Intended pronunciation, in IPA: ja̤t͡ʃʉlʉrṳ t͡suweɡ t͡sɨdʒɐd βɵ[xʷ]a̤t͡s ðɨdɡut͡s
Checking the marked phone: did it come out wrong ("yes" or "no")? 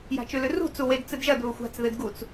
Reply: no